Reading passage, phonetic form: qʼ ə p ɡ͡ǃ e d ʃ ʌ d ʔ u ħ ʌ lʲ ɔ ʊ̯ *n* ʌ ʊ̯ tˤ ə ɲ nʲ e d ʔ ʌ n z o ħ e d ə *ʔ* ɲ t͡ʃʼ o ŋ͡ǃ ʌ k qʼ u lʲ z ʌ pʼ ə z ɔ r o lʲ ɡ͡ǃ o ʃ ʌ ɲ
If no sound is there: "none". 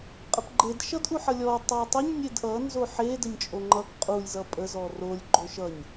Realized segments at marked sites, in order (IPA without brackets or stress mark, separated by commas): tˤ, none